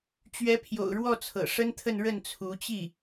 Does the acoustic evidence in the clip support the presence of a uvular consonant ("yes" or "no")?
no